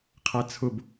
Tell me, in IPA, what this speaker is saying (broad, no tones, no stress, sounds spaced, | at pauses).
qʰ æ t͡sʰ ʊ b